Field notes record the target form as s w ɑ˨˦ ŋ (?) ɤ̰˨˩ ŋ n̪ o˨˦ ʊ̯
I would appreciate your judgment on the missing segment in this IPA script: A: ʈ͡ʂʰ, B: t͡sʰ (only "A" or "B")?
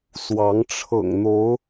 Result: A